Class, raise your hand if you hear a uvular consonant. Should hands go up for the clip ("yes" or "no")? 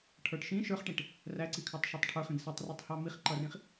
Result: yes